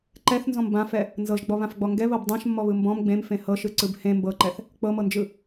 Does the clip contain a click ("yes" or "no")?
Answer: yes